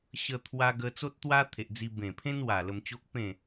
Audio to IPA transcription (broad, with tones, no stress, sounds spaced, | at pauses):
ɕ ə˧ t̪ʰ w a˧ ɡ ə˧ t͡s o˦ t̚ t̪ w a˦ t̪ʰ e˨ ʔ d͡z i˧ b ẽ˨˩ pʰ ẽ˦ n w a˨˩ l ə˧ m t͡ɕ o˦ k̚ p ẽ˥˧